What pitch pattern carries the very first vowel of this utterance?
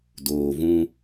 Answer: low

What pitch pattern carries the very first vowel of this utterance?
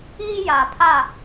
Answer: high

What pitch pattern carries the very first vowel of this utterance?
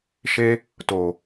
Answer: high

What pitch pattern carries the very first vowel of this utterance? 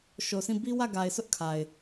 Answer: low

